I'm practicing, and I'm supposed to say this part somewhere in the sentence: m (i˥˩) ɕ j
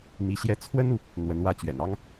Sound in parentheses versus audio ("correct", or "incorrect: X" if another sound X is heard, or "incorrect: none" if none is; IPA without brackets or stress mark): incorrect: i˧˥